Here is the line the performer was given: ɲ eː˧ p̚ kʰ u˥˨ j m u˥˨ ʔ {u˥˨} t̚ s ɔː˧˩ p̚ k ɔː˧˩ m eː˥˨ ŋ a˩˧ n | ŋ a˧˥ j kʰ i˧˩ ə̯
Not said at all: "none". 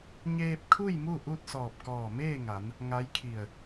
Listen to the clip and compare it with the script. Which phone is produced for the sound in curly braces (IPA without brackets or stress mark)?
u˥˨